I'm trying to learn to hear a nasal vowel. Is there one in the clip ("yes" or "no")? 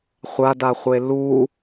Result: no